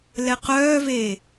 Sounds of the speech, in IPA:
lɛqœːveː

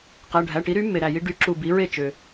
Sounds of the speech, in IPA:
qæ˩˧˩ɖʱæ˩˧˩ʈi˩˥ɾy˩˥ mːe˩ɾæ˩ji˧ ɖy˩˧˩ ǁu˧˩bi˩˥ɹe˥˩t͡ʃø˩

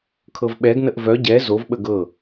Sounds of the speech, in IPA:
kʰɤvɓɛɡ nəʔvœ ɟɛ zov ɓəɡɤ

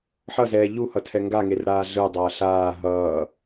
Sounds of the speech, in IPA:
ħʌzɛː ʎuhʌtʰɛ ŋɡaŋerɽaː ɮɯdˤʌː ɬaː ɦʌː

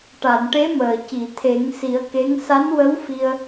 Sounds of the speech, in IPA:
ʈa˨˩˨nʈe˧˥məː˨˩ci˨˩˨ t̪ʰe˨˩˦ŋsi˨˩˦ə̯ke˧˥ŋ sa˧˥nwə˧˥wfi˧ə̯

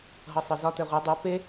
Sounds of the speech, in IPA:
ɦɤsˤə˞zɒ tɛʁʷɛ dˤʊ pe

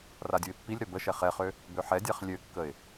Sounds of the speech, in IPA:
radʲuɪ̯pːilʲɾœ bəʃɛ χɛχø | bøħɛdʲaχ lʲøkːəɪ̯

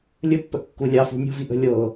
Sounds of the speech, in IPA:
lʲəpːəʔ kːulʲɑfṳ nʲṳviʔ ə̤ lʲɤ

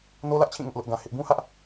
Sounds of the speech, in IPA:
no˦lä˦ʔt͡ɕʰĩ˦˨ ŋʊ˦ʔlʊ˦ʔɡã˦hɪ˦ʔ bũ˦hä˦ʔ

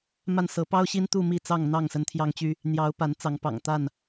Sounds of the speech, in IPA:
ma˥˨n sɤ˨˦pɑ˦ʊ̯ɕi˦n t̪u˥˨mi˥˨t͡sɑ˥˨ŋn̪ɑ˥˨ŋ sə˨˦nt̪ʰjɑ˦ŋt͡ɕy˦ | n̪jɑ˨˦ʊ̯ pa˨˦nt͡sɑ˨˦ŋpɑ̰˨˩ŋ t̪a˥˨n

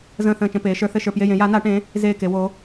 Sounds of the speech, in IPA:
zə̃ː˧˩θə̃ː˧˩t͡ʃə̃˧˩ peː˩˧ʃə˞˩˧ θɘ˧˩ʃə˞˧˩ pje˧˩jẽ˩˧ ja˩˧na˩˧ʈẽ˩˧ | zeː˧˩ke˩˧wo˩˧

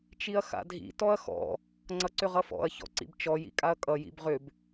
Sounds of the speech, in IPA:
t͡ʃiɐ̯xa̰dʱḭ tɔɐ̯xɔ̰ | ŋ͡ǀʌǀʏʁʌfɔ̰ɐ̯ çɔ̰ǀḭbt͡ʃɔ jḭkʼaɐ̯kʼʌ jḭbʁʏb

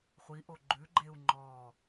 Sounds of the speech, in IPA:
χʷiʔo ɡ͡ǃʉɡ͡ǃeu̯ ŋ͡ǃɔː

